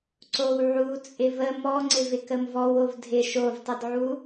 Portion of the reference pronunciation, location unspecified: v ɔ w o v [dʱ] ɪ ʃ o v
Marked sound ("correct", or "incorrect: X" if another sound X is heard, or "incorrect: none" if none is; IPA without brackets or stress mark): correct